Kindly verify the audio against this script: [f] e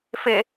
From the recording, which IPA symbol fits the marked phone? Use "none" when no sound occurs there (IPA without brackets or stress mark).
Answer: f